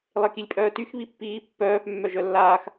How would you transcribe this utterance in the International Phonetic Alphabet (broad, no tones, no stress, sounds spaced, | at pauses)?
lˠ e k i lʲ pʼ œː t y x β i pː iː pː œː p mː œ ʒ œ lː aː x